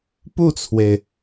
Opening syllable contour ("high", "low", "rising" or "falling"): falling